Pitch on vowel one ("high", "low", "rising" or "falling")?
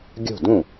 falling